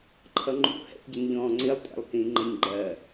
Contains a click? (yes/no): yes